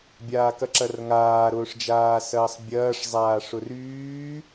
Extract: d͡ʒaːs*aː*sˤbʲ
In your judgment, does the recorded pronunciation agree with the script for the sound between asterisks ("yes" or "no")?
no